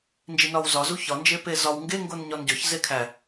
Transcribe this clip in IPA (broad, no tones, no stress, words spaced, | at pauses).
nd͡ʒinɒwzɒzu çɒnd͡ʒe pezɒw ŋɡeŋɡon ɲɒnɟɒç zekʰæ